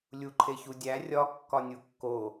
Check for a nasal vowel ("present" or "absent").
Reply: absent